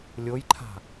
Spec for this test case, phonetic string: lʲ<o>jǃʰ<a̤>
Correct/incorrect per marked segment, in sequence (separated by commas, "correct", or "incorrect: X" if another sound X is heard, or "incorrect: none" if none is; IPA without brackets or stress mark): correct, correct